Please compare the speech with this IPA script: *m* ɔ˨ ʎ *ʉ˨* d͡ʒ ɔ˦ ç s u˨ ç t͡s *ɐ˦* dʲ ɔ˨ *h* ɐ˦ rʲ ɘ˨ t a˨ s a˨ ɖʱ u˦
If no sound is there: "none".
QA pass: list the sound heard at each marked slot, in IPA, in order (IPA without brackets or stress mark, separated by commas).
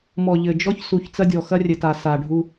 m, ɘ˨, ɐ˦, x